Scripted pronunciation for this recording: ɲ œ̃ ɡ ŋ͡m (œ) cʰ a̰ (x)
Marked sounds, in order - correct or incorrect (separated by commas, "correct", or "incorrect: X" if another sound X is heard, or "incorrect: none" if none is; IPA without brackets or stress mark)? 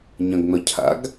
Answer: correct, incorrect: ɡ